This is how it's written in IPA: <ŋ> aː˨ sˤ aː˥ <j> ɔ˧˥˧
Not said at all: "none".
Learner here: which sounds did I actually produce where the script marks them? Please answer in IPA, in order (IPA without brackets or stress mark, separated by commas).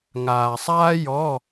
ŋ, j